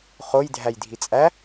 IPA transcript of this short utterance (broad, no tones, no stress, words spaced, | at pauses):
χojdʱæj dʱit͡sʼæ